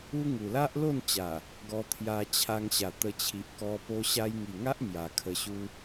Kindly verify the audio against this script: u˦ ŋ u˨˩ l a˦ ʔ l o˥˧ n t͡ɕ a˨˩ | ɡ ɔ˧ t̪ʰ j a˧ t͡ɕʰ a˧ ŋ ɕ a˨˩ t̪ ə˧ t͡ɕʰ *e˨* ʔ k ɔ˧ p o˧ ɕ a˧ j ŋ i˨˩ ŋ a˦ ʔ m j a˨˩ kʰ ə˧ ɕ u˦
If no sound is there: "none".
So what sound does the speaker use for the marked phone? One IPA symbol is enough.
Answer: i˨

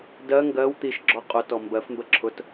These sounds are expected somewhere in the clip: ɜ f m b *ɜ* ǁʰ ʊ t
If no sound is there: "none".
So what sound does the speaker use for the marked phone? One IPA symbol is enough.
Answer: ɜ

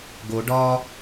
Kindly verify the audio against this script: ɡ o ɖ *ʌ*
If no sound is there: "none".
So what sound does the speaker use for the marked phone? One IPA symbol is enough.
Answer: ɒ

